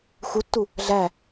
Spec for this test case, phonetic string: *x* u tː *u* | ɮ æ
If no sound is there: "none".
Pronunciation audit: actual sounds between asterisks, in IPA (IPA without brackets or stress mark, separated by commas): x, u